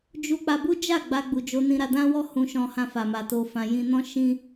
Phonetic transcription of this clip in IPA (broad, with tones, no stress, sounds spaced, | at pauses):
d͡ʒ u˦ k͡p a˧ b u˦ d͡ʒ a˦˨ ɡ͡b a˧ ɡ͡b u˨ d͡ʒ o˧ n ĩ˧ ɾ a˧ d ã˦ w ɔ˦ h ũ˧ ʃ ɔ̃˧ h ã˧ f a˨ m a˨ t o˨ f ã˨ j ĩ˧ n ɔ̃˦ ʃ ĩ˦